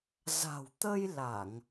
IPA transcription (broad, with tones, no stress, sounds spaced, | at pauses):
z a̤˨˩ w t̪ ə˧ j l a˧˩˨ ŋ